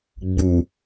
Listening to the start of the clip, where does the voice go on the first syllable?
low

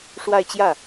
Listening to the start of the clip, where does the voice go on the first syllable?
falling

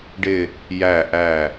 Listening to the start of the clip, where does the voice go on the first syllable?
low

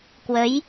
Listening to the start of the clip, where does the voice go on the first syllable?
rising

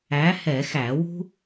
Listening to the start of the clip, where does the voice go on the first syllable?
rising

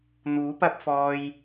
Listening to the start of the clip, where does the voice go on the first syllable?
rising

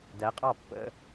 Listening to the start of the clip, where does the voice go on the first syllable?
rising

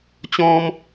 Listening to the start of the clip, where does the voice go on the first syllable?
high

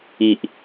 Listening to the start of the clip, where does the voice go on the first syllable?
low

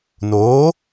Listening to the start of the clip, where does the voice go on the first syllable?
rising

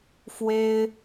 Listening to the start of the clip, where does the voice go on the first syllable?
high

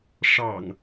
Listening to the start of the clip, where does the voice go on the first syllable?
low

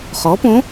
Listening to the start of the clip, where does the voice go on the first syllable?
rising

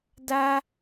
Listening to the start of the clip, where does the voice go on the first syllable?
high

